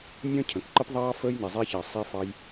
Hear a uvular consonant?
no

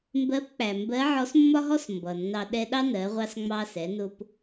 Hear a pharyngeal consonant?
yes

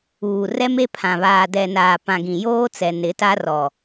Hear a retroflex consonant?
no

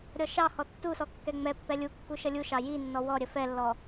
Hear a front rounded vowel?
no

